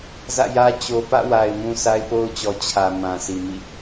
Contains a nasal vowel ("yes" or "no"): yes